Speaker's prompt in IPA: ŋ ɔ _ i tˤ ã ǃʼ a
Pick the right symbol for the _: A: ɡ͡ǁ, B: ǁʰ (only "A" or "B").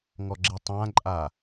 A